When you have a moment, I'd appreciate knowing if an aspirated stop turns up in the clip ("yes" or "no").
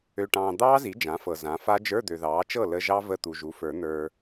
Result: no